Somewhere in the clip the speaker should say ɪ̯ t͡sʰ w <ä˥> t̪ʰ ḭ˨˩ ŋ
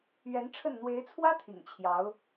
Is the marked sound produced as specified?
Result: yes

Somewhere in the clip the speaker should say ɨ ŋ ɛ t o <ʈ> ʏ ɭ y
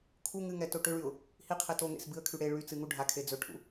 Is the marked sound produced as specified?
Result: yes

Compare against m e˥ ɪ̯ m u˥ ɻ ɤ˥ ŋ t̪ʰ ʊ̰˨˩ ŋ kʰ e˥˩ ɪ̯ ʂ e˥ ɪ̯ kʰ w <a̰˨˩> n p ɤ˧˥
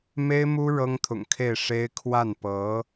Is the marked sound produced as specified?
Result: no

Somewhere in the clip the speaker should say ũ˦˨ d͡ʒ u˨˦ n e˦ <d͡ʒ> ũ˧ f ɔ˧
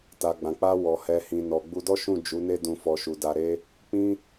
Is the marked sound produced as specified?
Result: no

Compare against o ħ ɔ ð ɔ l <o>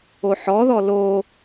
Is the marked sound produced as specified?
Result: yes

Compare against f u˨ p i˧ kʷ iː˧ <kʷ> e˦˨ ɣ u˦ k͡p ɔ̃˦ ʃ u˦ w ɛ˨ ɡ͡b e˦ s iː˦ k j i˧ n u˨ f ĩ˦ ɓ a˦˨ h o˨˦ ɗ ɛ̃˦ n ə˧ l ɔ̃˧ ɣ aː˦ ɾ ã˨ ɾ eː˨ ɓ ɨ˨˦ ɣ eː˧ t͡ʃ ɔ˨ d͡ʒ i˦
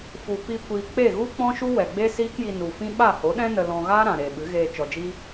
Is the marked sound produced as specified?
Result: no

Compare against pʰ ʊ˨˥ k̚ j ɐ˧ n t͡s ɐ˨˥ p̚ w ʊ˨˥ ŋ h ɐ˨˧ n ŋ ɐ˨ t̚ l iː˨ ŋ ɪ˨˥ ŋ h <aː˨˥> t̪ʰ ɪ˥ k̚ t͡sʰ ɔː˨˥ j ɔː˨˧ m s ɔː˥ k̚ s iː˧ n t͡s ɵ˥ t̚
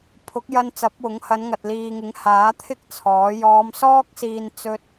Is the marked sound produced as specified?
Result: yes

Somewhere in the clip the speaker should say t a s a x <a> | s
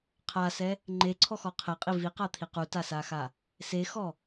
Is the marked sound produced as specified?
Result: yes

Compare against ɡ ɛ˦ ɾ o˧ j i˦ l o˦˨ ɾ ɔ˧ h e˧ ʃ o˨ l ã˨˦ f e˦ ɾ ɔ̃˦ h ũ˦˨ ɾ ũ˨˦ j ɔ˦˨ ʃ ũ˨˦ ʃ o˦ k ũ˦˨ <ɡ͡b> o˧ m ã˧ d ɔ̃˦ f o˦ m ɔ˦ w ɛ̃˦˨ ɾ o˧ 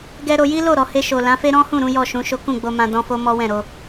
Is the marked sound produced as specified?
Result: yes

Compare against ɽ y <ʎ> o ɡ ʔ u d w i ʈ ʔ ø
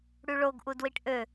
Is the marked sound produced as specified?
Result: no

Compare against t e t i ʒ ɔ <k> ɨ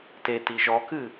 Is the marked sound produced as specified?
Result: yes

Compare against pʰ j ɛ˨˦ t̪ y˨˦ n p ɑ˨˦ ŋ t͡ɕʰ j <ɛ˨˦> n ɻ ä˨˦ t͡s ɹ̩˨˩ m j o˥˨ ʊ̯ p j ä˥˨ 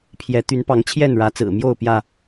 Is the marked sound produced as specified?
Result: no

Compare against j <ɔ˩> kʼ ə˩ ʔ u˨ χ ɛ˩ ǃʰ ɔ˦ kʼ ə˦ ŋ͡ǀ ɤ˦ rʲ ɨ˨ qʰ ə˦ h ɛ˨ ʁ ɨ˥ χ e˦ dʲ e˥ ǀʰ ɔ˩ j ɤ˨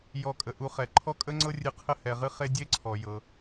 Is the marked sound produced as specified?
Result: no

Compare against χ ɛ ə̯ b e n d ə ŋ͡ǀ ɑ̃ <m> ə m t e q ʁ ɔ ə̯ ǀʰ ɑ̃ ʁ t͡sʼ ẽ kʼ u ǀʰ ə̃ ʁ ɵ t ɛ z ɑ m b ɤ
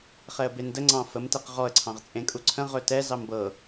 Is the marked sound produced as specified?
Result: no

